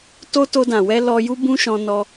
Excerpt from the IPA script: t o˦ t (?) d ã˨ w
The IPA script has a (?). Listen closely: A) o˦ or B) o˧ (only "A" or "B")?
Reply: B